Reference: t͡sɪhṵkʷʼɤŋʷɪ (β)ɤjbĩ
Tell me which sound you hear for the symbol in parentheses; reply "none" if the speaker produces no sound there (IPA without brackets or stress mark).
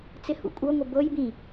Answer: b